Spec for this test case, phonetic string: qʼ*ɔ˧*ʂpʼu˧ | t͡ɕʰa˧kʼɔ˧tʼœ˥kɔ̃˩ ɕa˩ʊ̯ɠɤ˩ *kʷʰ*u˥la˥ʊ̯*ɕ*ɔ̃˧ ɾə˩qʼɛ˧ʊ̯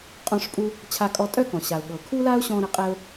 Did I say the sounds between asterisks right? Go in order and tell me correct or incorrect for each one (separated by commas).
incorrect, incorrect, correct